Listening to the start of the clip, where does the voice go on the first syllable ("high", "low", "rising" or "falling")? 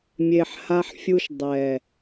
low